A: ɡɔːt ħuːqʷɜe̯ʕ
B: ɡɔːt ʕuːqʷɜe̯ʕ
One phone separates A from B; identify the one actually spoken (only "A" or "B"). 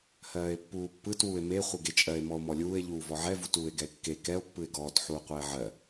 A